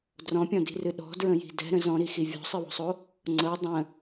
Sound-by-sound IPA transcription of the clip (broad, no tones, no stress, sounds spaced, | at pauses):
d r ɔ̃ pʲ ɔ̃ d i̤ r ɨ ɗ ɔ̤ d ɹ ə̃ j i̤ d ɛ̤ ɾ ə̃ z ɔ̃ ɾ i x i vʲ ɔ̤ sˤ ɨ w ɔ̤ sˤ o | ŋ͡ǀ ɤ dˤ ə̃